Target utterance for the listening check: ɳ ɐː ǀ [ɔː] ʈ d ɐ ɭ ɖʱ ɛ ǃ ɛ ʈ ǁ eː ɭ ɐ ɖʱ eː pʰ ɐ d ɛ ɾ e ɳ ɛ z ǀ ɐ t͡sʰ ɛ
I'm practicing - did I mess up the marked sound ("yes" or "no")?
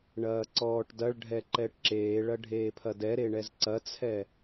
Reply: no